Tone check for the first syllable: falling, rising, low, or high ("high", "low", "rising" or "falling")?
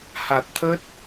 low